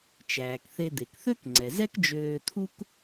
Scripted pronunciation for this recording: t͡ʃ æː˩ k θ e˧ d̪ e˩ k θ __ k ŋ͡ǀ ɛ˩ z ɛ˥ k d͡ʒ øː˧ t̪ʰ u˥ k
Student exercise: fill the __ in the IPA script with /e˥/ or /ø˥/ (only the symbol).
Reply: ø˥